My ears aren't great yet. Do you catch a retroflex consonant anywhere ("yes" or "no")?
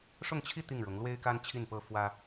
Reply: yes